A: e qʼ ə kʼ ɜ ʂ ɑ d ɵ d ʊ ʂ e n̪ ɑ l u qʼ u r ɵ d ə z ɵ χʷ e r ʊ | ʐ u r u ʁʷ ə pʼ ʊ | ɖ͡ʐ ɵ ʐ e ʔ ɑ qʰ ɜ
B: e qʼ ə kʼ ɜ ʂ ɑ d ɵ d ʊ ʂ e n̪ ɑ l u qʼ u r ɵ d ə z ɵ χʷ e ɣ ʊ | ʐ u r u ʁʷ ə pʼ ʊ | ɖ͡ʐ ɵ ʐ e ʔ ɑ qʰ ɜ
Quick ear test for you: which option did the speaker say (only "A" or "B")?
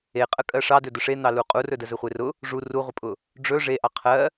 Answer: A